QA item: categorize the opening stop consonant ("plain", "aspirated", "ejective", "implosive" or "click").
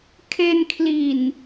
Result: aspirated